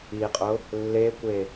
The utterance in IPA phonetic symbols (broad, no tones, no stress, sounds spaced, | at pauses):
i qʼ ʊ | lː e kʷ e